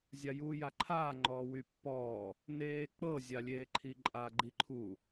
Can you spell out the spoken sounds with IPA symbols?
zʲ a j uː j a ǃʰ aː ŋ͡ǃ ɔː w y pː ɔː | n eː k͡p ɤ zʲ a lʲ eː ǃʰ i ǃʼ a ɡ͡ǃ i ǃʰ u

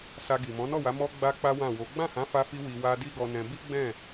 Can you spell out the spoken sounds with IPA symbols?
s a˧ ɡ i˨ m ɔ̃˨˦ n ɔ˦˨ w a˨˦ m ɔ˦ ɡ͡b a˦ k͡p a˦ w ã˦˨ w o˨˦ ɡ͡b ã˦˨ h ã˨˦ f a˧ f i˧ w i˧ w a˦ d i˦ ɡ ɔ˧ n ɛ̃˧ b i˦ ɡ͡b ɛ̃˦˨

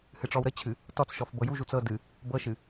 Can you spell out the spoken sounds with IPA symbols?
h ɨ ʈ͡ʂ ɔ w ɾ ə t͡ɕʰ ɨ | t ɔ t͡s ʃ ɔ f b ɤ j u ʒ u t͡s ɤ d ɨ | b ɤ ʃ ɨ

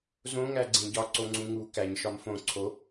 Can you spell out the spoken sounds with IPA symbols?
z õ ŋ æ ɡ͡ǀ ẽ ɟ ɒ ǀ o ŋ͡ǀ ũ ŋ u k æ ɲ ʃ ɒ m f õ ǀʰ o

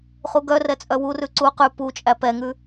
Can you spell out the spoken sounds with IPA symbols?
χ u ɡ œ r ɛ t͡sʼ œ w u r ʉ ǀ u q ʉ p u t͡ʃʼ æ p ɛ ŋ ʉ

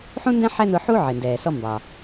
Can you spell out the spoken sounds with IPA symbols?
ħ ũ˥ n d æ̃˥ ħ æ˥ n ʊ˧ ħ u˥ ʕ ɪ˩ n d ɛː˩ s ɔ˧ m b ɑ˩

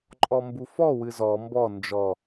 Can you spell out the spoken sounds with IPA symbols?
ǃʼ ɔ m b u f ɔ w ɨ z ɔ m b ɔ n d͡ʒ ɔ

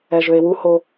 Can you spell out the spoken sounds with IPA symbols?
ɛ ʒ ø e̯ w u h o

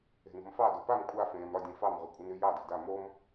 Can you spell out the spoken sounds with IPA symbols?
e̤ n o̤ m f ɑ d o p a m kʷʼ a f ẽː m ɾ ɒ dʲ ẽ f ɑ m ʁ y kʷʼ ə n y j ɑ d e̤ d a m o m

